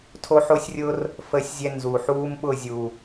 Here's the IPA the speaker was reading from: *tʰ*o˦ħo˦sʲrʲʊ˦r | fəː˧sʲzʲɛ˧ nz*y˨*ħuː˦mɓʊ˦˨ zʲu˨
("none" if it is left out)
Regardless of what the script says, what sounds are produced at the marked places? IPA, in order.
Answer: tʰ, u˨

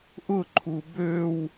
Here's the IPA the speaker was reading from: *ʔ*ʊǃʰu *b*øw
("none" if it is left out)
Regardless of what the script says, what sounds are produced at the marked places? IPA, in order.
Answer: ʔ, b

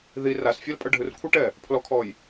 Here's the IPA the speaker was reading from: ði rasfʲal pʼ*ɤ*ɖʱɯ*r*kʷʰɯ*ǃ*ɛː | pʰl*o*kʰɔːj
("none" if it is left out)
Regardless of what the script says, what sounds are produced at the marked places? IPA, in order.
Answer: ɤ, r, ʈ, ɔ

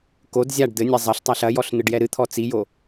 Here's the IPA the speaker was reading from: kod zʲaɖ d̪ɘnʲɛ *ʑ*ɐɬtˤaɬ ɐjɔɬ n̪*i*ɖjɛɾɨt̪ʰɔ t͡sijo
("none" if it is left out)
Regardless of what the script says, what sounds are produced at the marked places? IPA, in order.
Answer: zˤ, ɨ

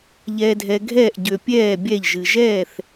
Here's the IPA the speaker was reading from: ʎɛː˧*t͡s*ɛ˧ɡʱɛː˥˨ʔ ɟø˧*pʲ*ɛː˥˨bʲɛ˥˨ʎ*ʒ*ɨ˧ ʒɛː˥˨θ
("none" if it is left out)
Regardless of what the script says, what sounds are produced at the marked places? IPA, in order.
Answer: dʱ, pʲ, ʒ

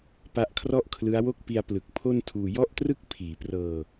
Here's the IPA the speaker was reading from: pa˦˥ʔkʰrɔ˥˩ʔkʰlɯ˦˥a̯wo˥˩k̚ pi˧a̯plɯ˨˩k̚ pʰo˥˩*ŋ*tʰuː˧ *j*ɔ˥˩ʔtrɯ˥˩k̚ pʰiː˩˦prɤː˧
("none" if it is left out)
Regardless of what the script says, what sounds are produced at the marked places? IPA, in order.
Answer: n, j

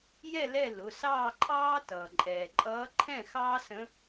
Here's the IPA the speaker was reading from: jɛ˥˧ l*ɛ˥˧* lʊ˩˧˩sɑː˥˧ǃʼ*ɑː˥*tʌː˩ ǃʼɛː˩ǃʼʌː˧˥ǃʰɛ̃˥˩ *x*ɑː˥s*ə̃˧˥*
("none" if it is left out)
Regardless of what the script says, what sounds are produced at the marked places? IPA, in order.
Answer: ɛ˥˧, ɑː˥, x, ə̃˧˥

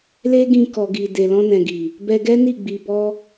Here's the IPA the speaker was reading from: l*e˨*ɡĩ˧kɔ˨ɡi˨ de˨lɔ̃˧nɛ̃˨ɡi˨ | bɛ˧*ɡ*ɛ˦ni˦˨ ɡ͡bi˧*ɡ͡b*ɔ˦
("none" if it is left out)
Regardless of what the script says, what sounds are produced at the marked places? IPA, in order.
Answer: e˦, ɡ, b

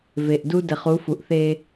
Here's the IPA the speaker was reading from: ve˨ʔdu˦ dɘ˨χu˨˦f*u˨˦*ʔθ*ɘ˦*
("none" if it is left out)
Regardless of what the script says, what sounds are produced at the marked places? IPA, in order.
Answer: u˨, e˦

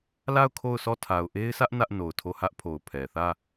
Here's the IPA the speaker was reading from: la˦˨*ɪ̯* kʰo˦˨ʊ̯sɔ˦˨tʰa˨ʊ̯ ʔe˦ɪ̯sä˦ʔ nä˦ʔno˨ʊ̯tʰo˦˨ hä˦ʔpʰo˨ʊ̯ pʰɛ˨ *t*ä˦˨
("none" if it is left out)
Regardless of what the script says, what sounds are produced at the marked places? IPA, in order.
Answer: ʊ̯, θ

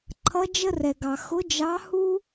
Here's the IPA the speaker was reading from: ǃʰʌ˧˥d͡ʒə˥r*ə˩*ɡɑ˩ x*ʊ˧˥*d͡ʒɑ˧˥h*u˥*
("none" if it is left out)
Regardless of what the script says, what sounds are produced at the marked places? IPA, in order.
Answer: ɛ˩, ʊ˧˥, u˥

